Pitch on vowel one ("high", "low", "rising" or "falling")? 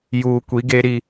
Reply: low